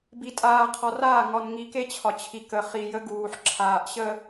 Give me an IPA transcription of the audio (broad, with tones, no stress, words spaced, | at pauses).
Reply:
bi˨tʼaː˨qʰɒ˨raː˦˨ ŋɒ˨nŋi˨ke˦ t͡ɕʰɒ˨t͡ɕʰi˨ kə˨χi˨jə˦ ɡuː˨ħǁʰaː˨ʔ ɕə˨